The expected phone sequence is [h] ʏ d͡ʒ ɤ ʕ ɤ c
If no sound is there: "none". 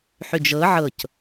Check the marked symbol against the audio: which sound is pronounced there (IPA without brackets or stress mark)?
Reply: ħ